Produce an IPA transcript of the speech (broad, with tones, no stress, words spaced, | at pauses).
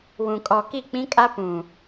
wũ˨kʼɔ˨ki˦˨ k͡pĩ˦kʼa˦ pũ˨